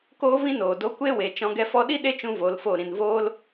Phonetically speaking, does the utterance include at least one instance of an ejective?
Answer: no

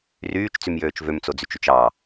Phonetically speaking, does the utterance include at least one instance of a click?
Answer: no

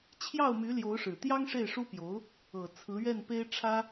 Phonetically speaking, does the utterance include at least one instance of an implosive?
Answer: no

